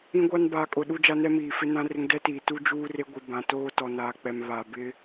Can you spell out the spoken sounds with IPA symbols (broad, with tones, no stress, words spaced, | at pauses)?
ĩ˦ɡʷa˦n baː˨kʼʊ˨ ɗu˦d͡ʒa˦nɛ˦miː˨ fɪ˦nã˦rɪ˦ŋ dɛ˦tiː˨ tu˦ d͡ʒuː˦re˦ɡʷi˨ bã˨toː˦ tɔ˨naː˨k͡pɛ˨m βa˨bɪ˦